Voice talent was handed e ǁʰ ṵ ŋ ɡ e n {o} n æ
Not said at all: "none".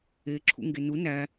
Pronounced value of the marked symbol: u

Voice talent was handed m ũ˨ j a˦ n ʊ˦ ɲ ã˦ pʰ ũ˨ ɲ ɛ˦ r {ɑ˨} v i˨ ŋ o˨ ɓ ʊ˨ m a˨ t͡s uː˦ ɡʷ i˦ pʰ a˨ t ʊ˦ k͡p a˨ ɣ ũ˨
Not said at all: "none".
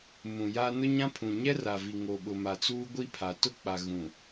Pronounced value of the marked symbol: a˨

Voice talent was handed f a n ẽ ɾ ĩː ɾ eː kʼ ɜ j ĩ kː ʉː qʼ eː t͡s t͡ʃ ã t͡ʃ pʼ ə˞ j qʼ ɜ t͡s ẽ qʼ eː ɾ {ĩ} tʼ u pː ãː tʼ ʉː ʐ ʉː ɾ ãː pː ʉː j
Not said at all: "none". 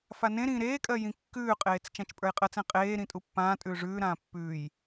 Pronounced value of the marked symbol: ĩ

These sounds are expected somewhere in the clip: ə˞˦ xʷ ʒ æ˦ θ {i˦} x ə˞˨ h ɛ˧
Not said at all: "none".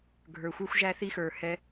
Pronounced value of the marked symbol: i˦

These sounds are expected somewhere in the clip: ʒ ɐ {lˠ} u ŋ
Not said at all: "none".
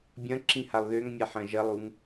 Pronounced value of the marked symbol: lˠ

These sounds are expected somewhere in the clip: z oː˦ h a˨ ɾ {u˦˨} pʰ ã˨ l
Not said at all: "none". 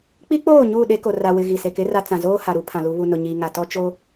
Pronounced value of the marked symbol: u˦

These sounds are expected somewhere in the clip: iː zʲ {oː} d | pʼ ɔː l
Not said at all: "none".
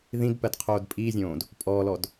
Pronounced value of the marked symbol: õː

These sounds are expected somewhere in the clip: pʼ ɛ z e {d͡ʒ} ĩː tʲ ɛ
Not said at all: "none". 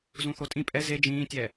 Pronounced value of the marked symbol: d͡ʒ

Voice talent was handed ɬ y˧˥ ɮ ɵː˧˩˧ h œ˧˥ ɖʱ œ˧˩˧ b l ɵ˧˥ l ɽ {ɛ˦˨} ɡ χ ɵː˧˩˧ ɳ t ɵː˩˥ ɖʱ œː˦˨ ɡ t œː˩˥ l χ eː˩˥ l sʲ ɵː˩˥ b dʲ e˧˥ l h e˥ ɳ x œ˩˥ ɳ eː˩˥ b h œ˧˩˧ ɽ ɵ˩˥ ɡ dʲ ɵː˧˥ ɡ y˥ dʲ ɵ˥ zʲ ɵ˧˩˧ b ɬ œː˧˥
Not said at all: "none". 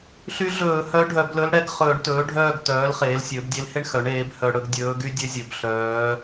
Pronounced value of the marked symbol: ɛ˦˨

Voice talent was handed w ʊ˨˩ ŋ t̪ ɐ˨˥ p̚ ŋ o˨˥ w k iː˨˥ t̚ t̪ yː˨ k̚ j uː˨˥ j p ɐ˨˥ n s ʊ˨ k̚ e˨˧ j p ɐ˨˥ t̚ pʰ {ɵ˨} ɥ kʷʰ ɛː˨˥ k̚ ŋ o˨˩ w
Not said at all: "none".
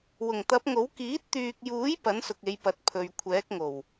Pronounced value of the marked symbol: ɵ˨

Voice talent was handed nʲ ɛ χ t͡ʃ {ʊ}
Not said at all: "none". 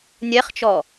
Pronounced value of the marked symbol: ɔ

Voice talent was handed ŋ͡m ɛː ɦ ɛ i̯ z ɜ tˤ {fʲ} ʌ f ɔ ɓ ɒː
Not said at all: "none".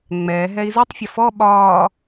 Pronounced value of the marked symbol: fʲ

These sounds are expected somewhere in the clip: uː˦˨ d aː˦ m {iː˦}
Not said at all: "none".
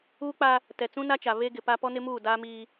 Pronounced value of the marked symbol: iː˦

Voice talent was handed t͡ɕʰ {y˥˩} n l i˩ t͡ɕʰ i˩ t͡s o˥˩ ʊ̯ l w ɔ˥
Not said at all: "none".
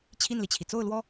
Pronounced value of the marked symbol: i˥˩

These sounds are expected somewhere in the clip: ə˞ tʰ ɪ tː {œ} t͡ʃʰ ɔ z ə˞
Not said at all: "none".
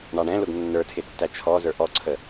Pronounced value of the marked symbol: æ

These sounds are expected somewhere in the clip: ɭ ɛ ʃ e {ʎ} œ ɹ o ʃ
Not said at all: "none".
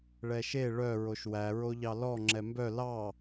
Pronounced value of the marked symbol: ɭ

